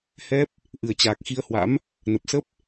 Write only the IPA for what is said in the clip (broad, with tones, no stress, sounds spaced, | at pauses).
h ɛ˦˥ p̚ | ʔ ɨ˨˩ ə̯ t͡ɕ aː˨˩ k̚ x i˧ ə̯ h w a̰˧˥ m | n ə˨˩ p̚ s ə˦˥ p̚